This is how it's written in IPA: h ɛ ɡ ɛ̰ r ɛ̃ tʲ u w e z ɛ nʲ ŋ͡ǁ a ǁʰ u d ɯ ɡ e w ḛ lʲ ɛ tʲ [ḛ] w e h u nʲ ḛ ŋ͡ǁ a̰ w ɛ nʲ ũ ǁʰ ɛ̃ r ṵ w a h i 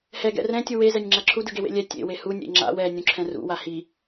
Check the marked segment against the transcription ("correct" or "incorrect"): correct